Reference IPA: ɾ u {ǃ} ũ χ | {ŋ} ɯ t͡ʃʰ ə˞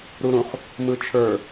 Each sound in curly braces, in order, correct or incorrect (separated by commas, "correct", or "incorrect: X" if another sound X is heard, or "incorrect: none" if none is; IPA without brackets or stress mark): incorrect: ɾ, incorrect: m